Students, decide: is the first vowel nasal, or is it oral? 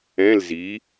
nasal